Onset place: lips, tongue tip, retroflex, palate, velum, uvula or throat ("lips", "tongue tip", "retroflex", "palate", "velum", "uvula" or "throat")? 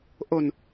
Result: throat